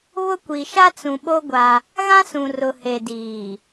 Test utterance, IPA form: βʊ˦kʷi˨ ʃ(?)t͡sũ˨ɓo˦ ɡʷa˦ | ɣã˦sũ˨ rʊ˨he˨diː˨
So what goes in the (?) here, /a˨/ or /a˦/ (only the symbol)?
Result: a˦